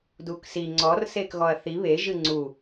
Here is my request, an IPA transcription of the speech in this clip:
d u k s i ŋ͡ǀ ɔ r s eː k ɣ ɔ ɐ̯ θ i β e ʒ ɨ ŋ͡ǀ u

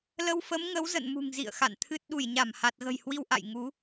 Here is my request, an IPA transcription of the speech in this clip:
l ə˧ w f ə˨˦ m ŋ ə˨˦ w z ə̰˧˨ n m ṳ˨˩ ŋ z ḭ˧˨ ə̯ x a̰˧˨ n t̪ʰ ɨ˦˥ t̚ ɗ u˧˩ j ɲ a˧˩ m h a˨˩ t̚ ɣ ə̤˨˩ j h w i˧ w ʔ a̰˧˨ j ŋ u˨˦

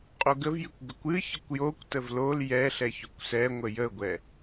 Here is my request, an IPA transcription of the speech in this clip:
qʼ o ɡ ə v j ɨ kʷ ɡ ə kʷ ɨ ç ə kʷ j o kʷ t ə v l o l j ɛ ɬ ɛ ç ʏ kʷ s ɛ ŋʷ ə j ə ɡʷ ɛ

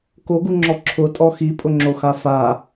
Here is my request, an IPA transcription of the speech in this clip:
k o ɡ u ŋ͡ǁ ɔ ǁʰ ʊ tʼ ɔ x i pʼ ʊ ŋ͡ǁ o x a f a

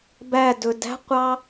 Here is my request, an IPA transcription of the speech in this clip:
b æ d ɵ d æ̤ qʷ ɑ

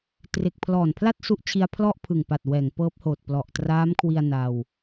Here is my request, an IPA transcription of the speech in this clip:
t r e˨˩ k̚ pʰ l ɔː˨˩ n pʰ l a˥˩ t̚ s u˦˥ ʔ t͡ɕʰ i˧ a̯ pʰ l ɔ˥˩ ʔ pʰ ɯ˨˩ ŋ p a˨˩ t̚ w ɛː˩˦ ŋ p ɤː˦˥ p̚ h oː˨˩ t̚ p l ɔ˨˩ ʔ t r aː˦˥ m kʰ w i˧ a̯ n a˧ w

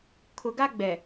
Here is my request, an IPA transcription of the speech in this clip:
kʰ ʊ˨ ɡ a˦ ɡ͡b ɛ˨

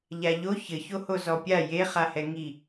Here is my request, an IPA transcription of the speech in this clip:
ʎ a ʎ o ç ɘ ç o h o z ɔ pʲ a j e χ a h ɛ ŋ i

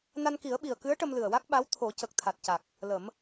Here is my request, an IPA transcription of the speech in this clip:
n a˧ n k i˨˩˦ ə̯ ɓ i˨˩ ə̯ k ɨ˧˥ ə̯ ʈ ə˧ m l ɨ˨˩ ə̯ w a˦˥ k̚ ɓ a˧˥ w t̪ʰ o˨˩˦ c ə˨˩ k̚ t̪ʰ a˨˩ t̚ c a˨˩ k̚ | l ə˨˩˦ m

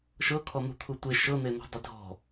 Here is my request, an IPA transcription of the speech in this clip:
ʃ ɤ kʰ ɔ n̪ ṳ t̪ʰ u tʷ e ʃ ɤ n̪ e n̪ ɔ̤ dˤ ɪ dʱ ɔ̤

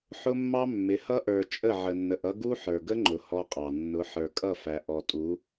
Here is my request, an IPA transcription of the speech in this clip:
ħ ʊ˦ mː ɑ˦ mː ɪ˨˦ h ʌ˦ ʔ ə˞˨ t͡ʃʼ ə˦˨ ʕ ə˨ nː ə˨ ʔ ʌ˦ ɡ u˦ ħ ə˞˨ ɡ ə˦ ŋ͡ǃ ʊ˨ h ɔ˦ qʼ ɑ˨ nː ʊ˨˦ ħ ə˞˨ kʼ ʌ˦˨ f æ˨ ʔ ɔ˨ tʼ u˨˦

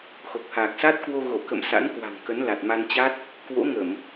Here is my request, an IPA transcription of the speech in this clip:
x o˨˩ k̚ h aː˨˩ k̚ s a˦˥ t̚ k w o˧ ɣ o˧˩ k ə̰˧˨ m s a̰˧˥ n k w a̤˨˩ ŋ k ə˨˦ n l a˨˩ t̚ m a˧ n t͡ɕ a˦˥ t̚ | k w o̰˧˥ ŋ ə˧˩˨ m

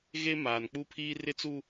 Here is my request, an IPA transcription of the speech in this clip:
ɣ e˦ m aː˨ n k͡p u˦ pʰ iː˦ r ɪ˦ t͡s u˦

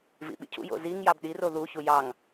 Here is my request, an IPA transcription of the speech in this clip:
v ḭ ɓ ḭ cʰ ṵ j o̰ z i ŋ j ɑ b ɗ i r o ð u ç u j ɑ ŋ

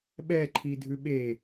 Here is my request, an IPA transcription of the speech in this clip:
ɓ ɛ ǃʰ i dʱ ʉ ɓ e

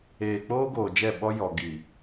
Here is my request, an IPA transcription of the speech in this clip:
eː˨ k͡p oː˦ ɡ oː˨ d͡ʒ ɛ˦˨ ɓ ɔ˦ j ɔ˨ ɡ i˨

